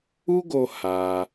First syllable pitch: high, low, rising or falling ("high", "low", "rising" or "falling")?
high